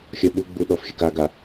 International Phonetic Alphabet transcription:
xʲ ʌ ɓ u ɡ͡b u ɗ ɔ f xʲ ə k a ɡ a

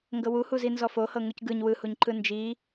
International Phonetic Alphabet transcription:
ŋ ɡ ɤ w u h u z i n z ɔ f o h ɤ ŋ u c ɡ ɯ ɲ w ɯ h u ɲ ǃ ɯ n d͡ʒ i

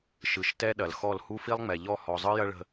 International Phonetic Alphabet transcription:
ʃ ɯ˨ ʃ t ɛ˦ ɗ ɐ˨ l x ɔ˦˨ l h u˦ f i˦ lˠ ŋ͡m ɛ˨ ʎ ɔ˦˨ h ɔ˨ zˤ ɯ˦ j ɐ˦ ɭ ə̤˨

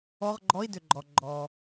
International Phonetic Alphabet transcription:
ɔ˧˥˧ ʁ ɡ͡ǃ ɔ˧˥˧ i̯ d ʏ˩ ɡ͡ǃ ɔ˩ ɡ͡ǃ ɔː˩

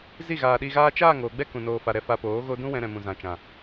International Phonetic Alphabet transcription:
z i˦˨ ɣ aː˨ ɗ i˧ ɣ aː˦ t͡ʃ aː˦˨ ŋ oː˨ ɡ͡b ɛ˦ k ũ˧ n oː˧ f a˨ ɾ ɛ˧ f a˧ p oː˨˦ ɣ o˦ d ũ˦ w ɛ̃˧ ɾ ɛ̃˨ m ũ˨ z ã˨ t͡ʃ ã˨

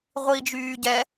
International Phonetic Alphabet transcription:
ʁʷ i d͡ʒ yː ɟ ɛ

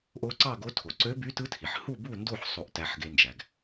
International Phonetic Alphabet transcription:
ʔ o˧˥ ǀ ɑ˥˨ ɡ o˧˥ tʰ o˩ ǀ ø˧˥ b y˧˥ t ɯ˧˥ tʰ i˩ ħ h u˥˨ b u˥˨ n d o˥˨ ħ sˤ o˥˨ ʔ t æ˧˥ ħ ɡ e˧˥ n d͡ʒ æ˩ ɡ

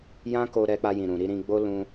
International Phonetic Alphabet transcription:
j ã˦ k o˧ ɾ ɛ˧ k͡p a˧ j ĩ˨ ɾ ũ˨ ɾ i˧ ɾ ĩ˧ ɡ͡b o˦ l ũ˧

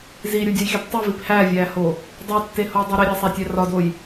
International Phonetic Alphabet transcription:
z i ɾʲ u dʲ ɒ j x e p tˤ i v i p h æ vʲ æ h o | dˤ o tː e h o dˤ e ɾ i ɾʲ æ sˤ æ tʲ æ r ɒ d o j

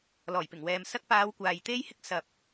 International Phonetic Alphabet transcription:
l ɔː˨˩ j p ɪ˨˩ ŋ w ɛː˨ m s ɐ˧ k̚ p aː˨˧ w kʷ aː˨ j t̪ e˥ j h ɪ˥ k̚ s ɐ˨ p̚

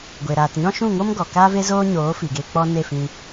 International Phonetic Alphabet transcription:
ɡʷ e˨ ɾ aː˨ t ɲ ɔ̃˦ ʃ ũ˦˨ ŋ o˦ m ɡ ɔ˨ k aː˦ v e˦ z oː˦ ɲ oː˨˦ f i˨ ɡ e˧ k͡p ɔ˦ n e˦˨ f ĩ˧

